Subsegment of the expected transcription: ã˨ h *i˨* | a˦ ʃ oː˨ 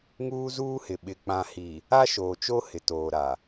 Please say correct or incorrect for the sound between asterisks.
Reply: correct